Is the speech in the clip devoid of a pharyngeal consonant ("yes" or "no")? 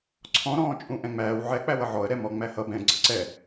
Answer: no